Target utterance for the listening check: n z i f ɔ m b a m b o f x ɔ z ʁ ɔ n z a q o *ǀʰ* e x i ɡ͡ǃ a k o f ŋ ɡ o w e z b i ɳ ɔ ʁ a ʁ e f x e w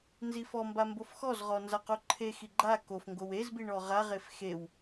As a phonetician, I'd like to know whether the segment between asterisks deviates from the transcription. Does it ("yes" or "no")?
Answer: yes